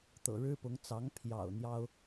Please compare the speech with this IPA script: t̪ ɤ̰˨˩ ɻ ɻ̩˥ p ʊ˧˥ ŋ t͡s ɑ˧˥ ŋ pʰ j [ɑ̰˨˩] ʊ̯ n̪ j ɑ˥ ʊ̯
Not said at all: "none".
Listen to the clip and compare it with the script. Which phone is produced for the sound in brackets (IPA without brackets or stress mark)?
ɑ̰˨˩